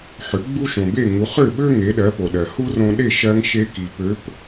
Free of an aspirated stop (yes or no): yes